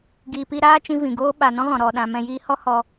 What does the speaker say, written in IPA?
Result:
ɡ iː˨ p i˧ ɾ aː˦ t͡ʃ ĩ˧ v ĩ˨ ɡ oː˦ ɓ a˨ n ɔ̃˦ ɣ ɔ̃˨ ɾ ɔ˨ ɗ ã˨ m ɛ̃˧ j iː˦ h ɔ˦ h ɔ˧

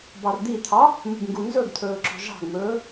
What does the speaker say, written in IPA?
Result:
b ɑ r d̪ i t̪ʰ ɑ | m ṳ b ŋ ɡ u n z ɵ ɡ t̪ʰ ɵː ǁ ɔ̤ ʒ ɑ̤ ɡ m ɵː

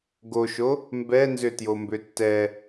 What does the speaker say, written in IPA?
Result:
ɡ o ʃ o | m b ɛ n z ʏ t j o m b ʏ tː ɛ

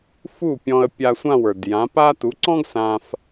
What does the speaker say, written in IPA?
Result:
f u˥˩ pʲ ɔ̃˧ ə̯ pʲ a˧ sʷ ã˥˩ w ə˞˩ d j ã˩˥ p a˥ t u˩˥ ǀ ɔ̃˥ ɡ s ã˧ f

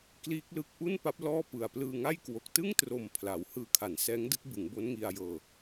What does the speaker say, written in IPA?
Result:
k l iː˦˥ k̚ l ɯ˦˥ k̚ ʔ u˥˩ n p a˦˥ p̚ l ɔː˥˩ p ɯ˨˩ a̯ p l ɯː˧ ŋ a˥˩ j k w o˨˩ k̚ t ɯ˥˩ ŋ t r o˨˩ m pʰ l a˩˦ w h ɯː˧ kʰ a˩˦ n s ɛː˦˥ ŋ d ɯ˥˩ k̚ b ɯ˩˦ ŋ b o˦˥ n ŋ i˧ a̯ j ɤː˧

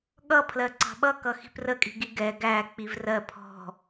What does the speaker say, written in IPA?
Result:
ɠ ʌ pʰ l ɜ ǀ ɑ̤ ɓ ʌ k ʌ x i̤ p r ə kʼ i̤ ɡ i ɡ ɛ ɡ æ k͡p i v r ɜ pʰ ɔ̤

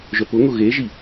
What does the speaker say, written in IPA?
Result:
ʒ œ p ʊ ŋ ʊ ɣ e ʒ i

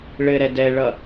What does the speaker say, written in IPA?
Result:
ɭ ɘ ɾ ɛ d ɛ ɭ ʌ

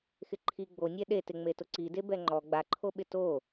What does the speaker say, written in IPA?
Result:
x ɪ ǃʰ i ɡ͡b o nʲ ɛ ɗ e t ɪ ŋ͡m e t ʊ ǀ i d e b ɛ ŋ͡ǃ ɔ ɡ͡b a ǃʰ o ɓ ɪ t o

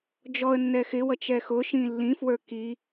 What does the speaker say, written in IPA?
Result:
d͡ʒ ɔ ə̯ nː ɛ x ɪ w ʌ t͡ʃ ɛ x ʊ ʃ ĩ lː ĩ f w ə˞ k i

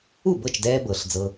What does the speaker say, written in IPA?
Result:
u˥˩ b ɤ˥˩ t͡ʃ d ɛː˧ b ɤ˩ ɬ d͡z ɤ˧

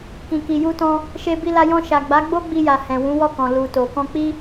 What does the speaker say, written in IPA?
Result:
k ĩ˨ k i˨ j u˧ t ɔ̃˧ | ʃ e˧ b i˧ l a˧ j ɔ̃˧ ʃ a˨ ɡ͡b a˨˦ ɡ͡b o˦ ɡ͡b i˧ j a˨ h ɛ̃˨ w ũ˨˦ w ɔ˦˨ k ɔ̃˨ l u˨ t o˨ k ɔ̃˧ k͡p i˦

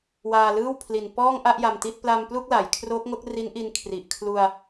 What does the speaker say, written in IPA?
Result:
w aː˧ l ɯː˥˩ w pʰ l i˨˩ n p ɔː˥˩ ŋ ʔ a˥˩ ʔ j a˧ m t i˥˩ t̚ p l a˧ m p l u˥˩ k̚ l a˩˦ j kʰ r o˦˥ k̚ ŋ o˦˥ k̚ r i˦˥ n ʔ i˧ n kʰ r i˨˩ ʔ kʰ l u˧ a̯

